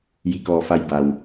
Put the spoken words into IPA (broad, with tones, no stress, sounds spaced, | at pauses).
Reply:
j i˧˩ k ɔː˧˩ f a˧ j b a˩ w